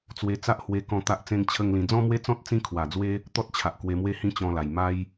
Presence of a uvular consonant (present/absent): absent